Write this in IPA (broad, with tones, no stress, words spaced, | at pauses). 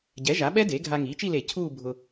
ɟɛ˩˥ʒa˩˥ɓɛ˦˥ de˩˥ ɡʱa˧ŋiː˩˥t͡ʃi˥˧le˧˩˧ cʰuː˥˧ bʱʊ˧